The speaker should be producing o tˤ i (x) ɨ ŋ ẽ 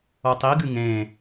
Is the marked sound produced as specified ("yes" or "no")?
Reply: no